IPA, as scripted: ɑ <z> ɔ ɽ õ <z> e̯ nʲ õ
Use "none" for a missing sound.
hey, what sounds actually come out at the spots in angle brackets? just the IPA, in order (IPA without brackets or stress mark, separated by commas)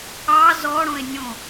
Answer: z, none